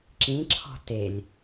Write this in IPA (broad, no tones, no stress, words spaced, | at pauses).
ǁĩǁʰɔ̤ telʲ